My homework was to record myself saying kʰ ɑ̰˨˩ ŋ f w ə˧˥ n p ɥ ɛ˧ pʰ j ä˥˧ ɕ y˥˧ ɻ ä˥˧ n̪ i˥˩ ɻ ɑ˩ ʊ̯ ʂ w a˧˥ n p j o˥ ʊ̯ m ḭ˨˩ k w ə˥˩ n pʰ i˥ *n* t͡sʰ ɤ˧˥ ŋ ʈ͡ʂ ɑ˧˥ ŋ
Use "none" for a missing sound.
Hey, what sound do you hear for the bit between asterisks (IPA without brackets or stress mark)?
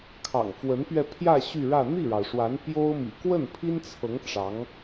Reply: n